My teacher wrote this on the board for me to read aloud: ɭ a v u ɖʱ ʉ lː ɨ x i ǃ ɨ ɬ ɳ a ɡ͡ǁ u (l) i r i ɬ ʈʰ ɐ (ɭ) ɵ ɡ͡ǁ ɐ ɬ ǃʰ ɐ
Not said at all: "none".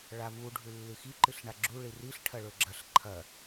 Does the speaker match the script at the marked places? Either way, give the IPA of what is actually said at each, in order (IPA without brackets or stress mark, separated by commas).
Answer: ɭ, ɭ